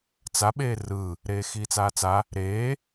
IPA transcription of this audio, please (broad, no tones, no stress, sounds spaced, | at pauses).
t͡s a ɓ eː r ɯː | ɾ eː x iː t͡s aː t͡s a | ɾ eː